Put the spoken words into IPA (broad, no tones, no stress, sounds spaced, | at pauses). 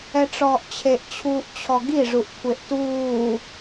ɛ ʈ͡ʂ ɔː ʔ t͡ɕʰ e ʔ t͡ɕʰ uː ʔ t͡ɕʰ ɔ ɡ i ʐ u ʔ kʷʰ e ʔ t uː